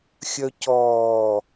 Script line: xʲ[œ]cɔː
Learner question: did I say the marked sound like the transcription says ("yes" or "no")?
yes